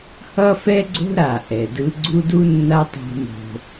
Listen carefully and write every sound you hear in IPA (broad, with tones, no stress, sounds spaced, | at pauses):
h ʌ˦ f ɛ˦ ɡ͡ǀ o̤˦ ɾ a˨ ʔ ɛ˨ d ɯ˦ ɡ͡ǀ u˦ d u˦ nː a˦ tˤ ṳ˦ m o̤˦